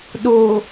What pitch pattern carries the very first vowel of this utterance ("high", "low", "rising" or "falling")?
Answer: low